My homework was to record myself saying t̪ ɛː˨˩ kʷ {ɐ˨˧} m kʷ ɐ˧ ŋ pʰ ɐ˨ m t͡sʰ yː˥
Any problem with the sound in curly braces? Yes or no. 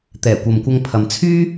yes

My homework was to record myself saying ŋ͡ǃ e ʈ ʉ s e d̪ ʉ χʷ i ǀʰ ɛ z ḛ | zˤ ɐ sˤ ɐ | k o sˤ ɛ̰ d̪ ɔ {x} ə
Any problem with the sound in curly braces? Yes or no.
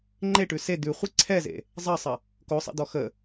no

